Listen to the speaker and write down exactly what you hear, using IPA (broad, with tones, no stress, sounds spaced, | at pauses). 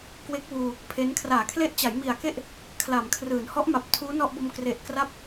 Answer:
k w e˦˥ k̚ w uː˧ | pʰ e˦˥ n kʰ r aː˩˦ kʰ l e˦˥ ʔ t͡ɕ a˩˦ j m i˨˩ a̯ k e˥˩ ʔ | kʰ l a˩˦ m kʰ r ɯː˩˦ n h ɔ˦˥ ʔ m a˨˩ p̚ tʰ uː˦˥ n ɔ˥˩ ʔ b o˧ m k r e˨˩ ʔ k r a˦˥ p̚